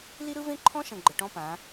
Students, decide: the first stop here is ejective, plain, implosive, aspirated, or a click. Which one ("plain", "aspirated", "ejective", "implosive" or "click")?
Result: click